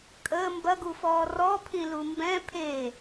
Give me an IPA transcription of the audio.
kʼ əː m b ɐ ɡ u f ɔː r ɔ pʰ ĩ l u m b ɛ̃ pʰ e

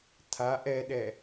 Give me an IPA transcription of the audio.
tʰ a ʔ ɛ ɗ ɛ

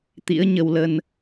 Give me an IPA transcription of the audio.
t̪ ḭ˧˥ ə̯ ɲ ə˧ w l ə˧ n

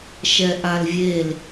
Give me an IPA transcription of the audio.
ʃ ɛ ʔ a l vʲ e l

